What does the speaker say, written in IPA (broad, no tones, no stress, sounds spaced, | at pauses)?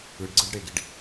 ɯ ɖ ɡ͡ǀ ɯ ɖ ɽ e ɡ i ɖ